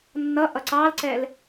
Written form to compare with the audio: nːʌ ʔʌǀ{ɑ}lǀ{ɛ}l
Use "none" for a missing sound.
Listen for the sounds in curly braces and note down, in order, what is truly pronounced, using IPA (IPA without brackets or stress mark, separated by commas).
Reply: ɑ, ɛ